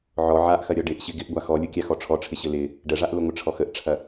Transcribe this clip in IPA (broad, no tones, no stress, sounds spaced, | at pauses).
ʕ ɔ ʕ a ʔ x ɐ ɾʲ ɔ ɖ ɪ ʔ ɕ ɪ ɡ ɪ ʔ ɡʷ a x ɔ lʲ ʊ kʲ a x ɔ ʈ͡ʂʰ ɔ ʈ͡ʂʰ ɪ ɕ ɘ l ɪ | ɖ ə ʐ a ʔ l ʊ ŋʷ ɪ ʈ͡ʂʰ ɔ x ə ʔ ʈ͡ʂʰ ɐ